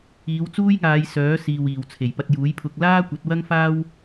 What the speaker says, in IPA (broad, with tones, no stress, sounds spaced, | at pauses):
iː˨˧ w t͡s uː˥ j ŋ aː˨˧ j s œː˨˥ s iː˨ w iː˨˩ w t͡sʰ e˨˩ j p ɐ˧ t̚ j uː˨˥ j pʰ ʊ˧ k̚ l aː˥ kʷ ɐ˨˥ t̚ w ɐ˥ ŋ f aː˥ w